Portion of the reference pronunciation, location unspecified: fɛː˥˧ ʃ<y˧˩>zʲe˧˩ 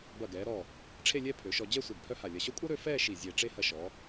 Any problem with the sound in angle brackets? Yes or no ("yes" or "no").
yes